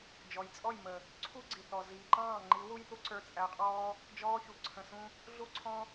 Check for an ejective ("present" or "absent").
present